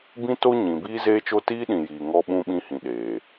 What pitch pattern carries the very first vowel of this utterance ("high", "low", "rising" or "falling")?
high